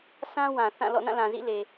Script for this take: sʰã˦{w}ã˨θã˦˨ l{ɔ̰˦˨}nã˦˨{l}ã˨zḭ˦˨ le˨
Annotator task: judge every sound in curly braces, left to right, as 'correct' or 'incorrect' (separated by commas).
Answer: correct, correct, correct